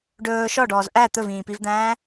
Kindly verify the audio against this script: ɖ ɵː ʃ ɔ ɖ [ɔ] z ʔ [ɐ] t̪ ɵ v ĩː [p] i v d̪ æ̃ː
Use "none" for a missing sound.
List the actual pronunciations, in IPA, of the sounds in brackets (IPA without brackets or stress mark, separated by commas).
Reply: ɔː, æ, p